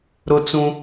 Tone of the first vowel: high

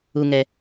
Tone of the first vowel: low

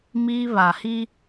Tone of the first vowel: high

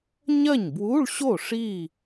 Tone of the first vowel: falling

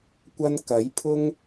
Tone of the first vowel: high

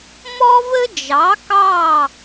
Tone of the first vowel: high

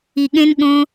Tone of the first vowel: low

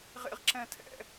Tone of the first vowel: high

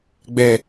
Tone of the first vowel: low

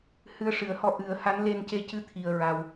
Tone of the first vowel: rising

